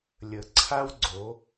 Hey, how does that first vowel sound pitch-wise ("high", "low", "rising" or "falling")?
low